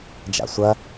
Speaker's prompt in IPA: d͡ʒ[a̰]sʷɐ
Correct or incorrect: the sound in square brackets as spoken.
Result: correct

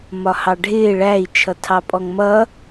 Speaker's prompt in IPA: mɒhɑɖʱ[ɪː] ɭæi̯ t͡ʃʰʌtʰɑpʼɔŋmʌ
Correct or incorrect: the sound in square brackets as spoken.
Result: correct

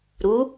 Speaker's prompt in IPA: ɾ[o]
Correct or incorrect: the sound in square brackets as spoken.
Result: incorrect: u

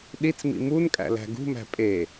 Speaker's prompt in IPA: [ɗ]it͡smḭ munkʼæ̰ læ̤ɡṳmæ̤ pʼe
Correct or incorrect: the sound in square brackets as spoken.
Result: correct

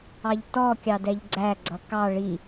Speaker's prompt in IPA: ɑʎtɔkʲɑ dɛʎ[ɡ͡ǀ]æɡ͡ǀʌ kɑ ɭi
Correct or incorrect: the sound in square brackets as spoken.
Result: correct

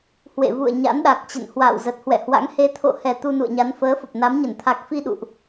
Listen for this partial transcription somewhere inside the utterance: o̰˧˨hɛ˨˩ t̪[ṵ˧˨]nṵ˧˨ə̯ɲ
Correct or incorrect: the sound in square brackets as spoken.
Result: incorrect: u˧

